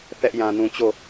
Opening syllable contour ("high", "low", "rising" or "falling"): high